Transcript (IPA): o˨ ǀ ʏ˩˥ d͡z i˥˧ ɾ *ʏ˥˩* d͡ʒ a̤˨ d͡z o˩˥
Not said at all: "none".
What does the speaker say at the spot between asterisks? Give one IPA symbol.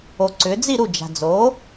u˥˩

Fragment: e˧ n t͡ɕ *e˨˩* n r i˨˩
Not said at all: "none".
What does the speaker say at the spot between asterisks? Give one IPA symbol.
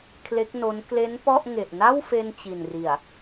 i˨˩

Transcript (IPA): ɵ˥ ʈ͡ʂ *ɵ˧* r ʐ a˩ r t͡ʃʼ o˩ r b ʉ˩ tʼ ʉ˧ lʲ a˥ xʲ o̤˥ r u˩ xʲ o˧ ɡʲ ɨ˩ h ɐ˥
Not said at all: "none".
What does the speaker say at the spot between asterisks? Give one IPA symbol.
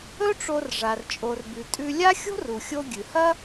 o˧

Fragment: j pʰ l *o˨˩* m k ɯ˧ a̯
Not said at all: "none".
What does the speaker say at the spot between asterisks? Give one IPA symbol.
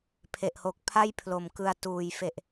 o˨˩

